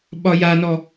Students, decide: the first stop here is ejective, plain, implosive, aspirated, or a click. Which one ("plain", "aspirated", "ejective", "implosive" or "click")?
implosive